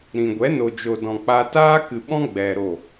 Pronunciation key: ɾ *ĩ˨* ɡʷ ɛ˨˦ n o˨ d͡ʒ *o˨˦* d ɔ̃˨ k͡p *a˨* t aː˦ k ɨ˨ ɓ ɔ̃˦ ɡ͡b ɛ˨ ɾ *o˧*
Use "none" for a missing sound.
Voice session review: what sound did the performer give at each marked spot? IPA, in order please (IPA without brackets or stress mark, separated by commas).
ĩ˨, o˨, a˧, o˦˨